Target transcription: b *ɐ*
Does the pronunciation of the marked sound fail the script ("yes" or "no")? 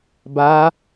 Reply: yes